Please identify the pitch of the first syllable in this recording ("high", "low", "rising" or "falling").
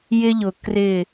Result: high